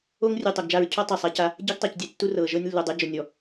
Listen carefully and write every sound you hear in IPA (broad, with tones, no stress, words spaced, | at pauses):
o˦ŋrʲu˨ tˤo˨ɡd͡ʒa˦˨ɹ cʰɔ˦ tˤɛ˨ sˤa˦ca˦ | ɟɛ˦ɡtˤa˨cdʲɛ˦tːu˦ rɤ˨ ʒɤ˦nʲ lːu˨dˤɤ˦d͡ʒo˨nʲɔ˨